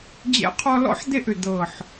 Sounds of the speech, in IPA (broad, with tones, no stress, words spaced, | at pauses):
d͡ʑɛ̰˥qʰɔ˥ lɔ̰˥ħd̪e˥˧ʔʏ˧˩ d̪ɤ˧˩ħ